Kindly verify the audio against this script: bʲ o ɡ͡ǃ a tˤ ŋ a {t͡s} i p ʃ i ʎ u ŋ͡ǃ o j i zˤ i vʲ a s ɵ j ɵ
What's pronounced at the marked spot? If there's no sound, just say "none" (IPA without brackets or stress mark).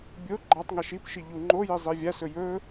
ʃ